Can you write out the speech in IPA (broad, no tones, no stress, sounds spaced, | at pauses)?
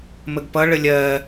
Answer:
m ə ɡ p ʌ ɭ ə lʲ ɜ